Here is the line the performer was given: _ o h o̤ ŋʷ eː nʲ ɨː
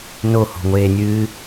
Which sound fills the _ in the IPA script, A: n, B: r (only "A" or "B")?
A